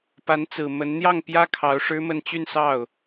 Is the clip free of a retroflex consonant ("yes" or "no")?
no